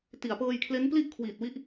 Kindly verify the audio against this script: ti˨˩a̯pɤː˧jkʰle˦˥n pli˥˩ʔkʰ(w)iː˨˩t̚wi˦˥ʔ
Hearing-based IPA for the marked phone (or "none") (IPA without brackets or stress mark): w